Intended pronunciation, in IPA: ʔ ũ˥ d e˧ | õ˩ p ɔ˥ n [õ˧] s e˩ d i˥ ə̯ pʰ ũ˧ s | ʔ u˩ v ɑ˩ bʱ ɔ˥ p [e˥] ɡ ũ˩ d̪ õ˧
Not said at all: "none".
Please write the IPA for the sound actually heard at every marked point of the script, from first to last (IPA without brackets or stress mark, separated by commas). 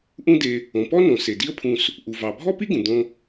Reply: õ˩, i˥